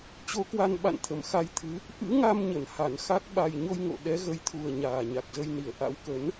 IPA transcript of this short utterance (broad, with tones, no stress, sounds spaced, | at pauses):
t͡ɕ o˨˦ k w a˧ n ɓ a̰˧˨ n t̪ʰ ə˧˩ m x a˧ j t̪ʰ ɨ˨˦ | ʔ ɨ̰˧˥ ŋ a˧ m ɲ ə˧˩ n h a˧˩ n x a˦˥ k̚ ɓ a˨˩ j ɲ o˧ j ŋ o̰˧˨ ɗ ɛ˨˦ ɣ ə˨˦ j t̪ʰ u˨˩ ə̯ ɲ aː˨˩ ɲ a˨˩ k̚ z ə˧ j n i˧˩ ə̯ ʔ a̰˧˥ w k ə˨˦ n